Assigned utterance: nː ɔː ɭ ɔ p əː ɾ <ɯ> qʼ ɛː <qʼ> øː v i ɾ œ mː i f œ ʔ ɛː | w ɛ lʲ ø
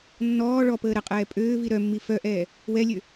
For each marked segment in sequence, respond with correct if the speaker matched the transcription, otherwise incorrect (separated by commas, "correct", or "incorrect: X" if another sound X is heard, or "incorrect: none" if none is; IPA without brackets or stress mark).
incorrect: ə, incorrect: pʼ